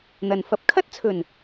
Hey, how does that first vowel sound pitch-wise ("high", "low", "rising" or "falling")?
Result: low